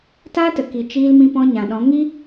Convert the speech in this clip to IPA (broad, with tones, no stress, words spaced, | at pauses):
taː˦tə˨ki˨ t͡ʃiː˧lmĩ˧ pɔ̃˧ɲã˨ɗɔ̃˨˦ŋi˦